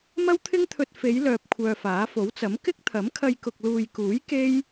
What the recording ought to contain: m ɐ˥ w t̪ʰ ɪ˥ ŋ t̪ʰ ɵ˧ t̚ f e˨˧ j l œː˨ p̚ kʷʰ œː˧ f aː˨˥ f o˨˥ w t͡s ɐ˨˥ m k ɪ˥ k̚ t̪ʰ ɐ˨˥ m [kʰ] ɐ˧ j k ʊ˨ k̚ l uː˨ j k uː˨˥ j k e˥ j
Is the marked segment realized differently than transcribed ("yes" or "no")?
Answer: no